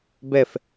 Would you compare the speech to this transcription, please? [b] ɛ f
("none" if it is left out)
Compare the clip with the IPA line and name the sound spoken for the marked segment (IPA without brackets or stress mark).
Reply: b